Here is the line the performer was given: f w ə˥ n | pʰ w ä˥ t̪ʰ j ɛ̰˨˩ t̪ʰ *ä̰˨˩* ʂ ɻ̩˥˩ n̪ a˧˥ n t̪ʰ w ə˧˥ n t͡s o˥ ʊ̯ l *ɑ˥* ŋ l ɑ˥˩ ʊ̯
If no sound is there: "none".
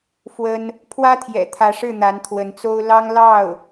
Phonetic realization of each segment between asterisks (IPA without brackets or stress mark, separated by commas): ä˧˥, ɑ˥